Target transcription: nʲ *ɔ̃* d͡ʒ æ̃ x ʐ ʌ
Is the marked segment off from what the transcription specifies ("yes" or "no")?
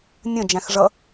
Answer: yes